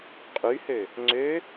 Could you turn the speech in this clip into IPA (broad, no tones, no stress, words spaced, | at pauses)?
qʼyhø | ŋ͡ǀø